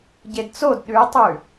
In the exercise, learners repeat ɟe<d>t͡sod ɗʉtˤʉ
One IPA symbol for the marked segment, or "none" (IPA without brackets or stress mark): d